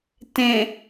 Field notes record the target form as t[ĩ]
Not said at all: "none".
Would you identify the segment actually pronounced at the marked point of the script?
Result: ẽ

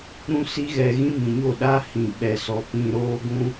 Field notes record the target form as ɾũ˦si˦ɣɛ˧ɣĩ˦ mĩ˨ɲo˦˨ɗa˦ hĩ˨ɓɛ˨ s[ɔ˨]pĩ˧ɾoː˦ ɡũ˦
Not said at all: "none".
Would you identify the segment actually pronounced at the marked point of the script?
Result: ɔ˨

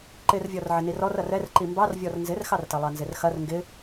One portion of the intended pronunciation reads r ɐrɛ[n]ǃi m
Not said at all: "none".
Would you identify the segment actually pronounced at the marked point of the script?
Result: r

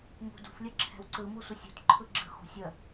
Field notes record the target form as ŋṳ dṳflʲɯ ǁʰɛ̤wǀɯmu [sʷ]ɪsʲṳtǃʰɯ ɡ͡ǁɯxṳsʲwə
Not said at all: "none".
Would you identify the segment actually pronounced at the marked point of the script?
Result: sʷ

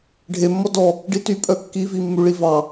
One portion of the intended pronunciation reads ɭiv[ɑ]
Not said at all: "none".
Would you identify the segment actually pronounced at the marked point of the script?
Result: ɑ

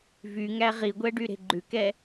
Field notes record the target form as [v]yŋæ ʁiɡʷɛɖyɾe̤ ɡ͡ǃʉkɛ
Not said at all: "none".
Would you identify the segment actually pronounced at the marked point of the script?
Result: v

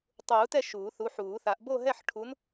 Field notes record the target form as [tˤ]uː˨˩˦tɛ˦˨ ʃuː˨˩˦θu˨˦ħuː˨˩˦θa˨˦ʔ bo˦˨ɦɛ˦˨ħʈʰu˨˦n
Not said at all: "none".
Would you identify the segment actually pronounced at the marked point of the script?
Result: tˤ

